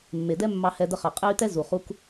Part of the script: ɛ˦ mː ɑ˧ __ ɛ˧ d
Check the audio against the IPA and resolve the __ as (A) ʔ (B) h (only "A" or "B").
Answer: B